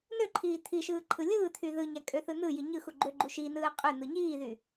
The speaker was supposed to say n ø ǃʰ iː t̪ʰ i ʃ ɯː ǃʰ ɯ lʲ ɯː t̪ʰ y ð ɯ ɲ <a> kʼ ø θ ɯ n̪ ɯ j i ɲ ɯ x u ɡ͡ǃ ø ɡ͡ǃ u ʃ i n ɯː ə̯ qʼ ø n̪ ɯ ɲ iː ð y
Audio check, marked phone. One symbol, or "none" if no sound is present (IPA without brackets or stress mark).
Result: æ